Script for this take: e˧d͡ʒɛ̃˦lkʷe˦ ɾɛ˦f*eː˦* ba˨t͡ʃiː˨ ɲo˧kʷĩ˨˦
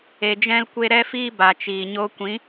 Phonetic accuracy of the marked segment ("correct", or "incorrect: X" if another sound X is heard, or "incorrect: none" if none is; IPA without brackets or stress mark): incorrect: iː˦